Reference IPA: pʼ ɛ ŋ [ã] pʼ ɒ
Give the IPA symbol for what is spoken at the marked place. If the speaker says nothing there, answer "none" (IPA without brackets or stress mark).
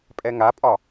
a